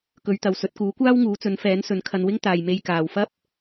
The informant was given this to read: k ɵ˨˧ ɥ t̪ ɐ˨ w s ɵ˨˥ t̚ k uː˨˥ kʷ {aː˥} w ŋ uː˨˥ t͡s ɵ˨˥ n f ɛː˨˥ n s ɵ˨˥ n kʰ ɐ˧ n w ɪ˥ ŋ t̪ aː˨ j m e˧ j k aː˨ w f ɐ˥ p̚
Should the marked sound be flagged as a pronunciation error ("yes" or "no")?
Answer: no